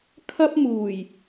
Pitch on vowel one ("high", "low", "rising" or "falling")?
high